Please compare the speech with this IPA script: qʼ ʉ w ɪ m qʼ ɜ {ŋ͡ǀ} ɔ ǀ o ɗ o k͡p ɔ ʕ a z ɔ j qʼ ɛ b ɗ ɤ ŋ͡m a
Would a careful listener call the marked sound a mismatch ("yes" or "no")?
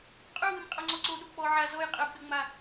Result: no